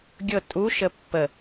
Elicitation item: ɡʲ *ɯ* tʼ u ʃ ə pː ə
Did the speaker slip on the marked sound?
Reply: yes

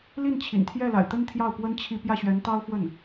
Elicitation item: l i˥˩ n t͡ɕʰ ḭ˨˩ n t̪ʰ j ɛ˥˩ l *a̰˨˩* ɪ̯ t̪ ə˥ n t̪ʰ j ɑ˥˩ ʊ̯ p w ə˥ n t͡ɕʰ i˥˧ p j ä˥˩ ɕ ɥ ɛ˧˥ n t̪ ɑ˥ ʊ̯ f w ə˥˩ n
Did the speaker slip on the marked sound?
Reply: no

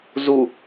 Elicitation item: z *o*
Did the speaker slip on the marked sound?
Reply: yes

